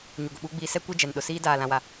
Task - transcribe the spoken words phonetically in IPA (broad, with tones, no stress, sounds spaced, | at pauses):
ɲ u˨ ɡ ʊ˨ ɓ uː˦ ɡ͡b iː˦ s ɛ˦ kʷ e˦ d͡ʒ ɛ˨ n ɗ ʊ˨ s iː˦ d aː˦˨ l ã˦ w a˦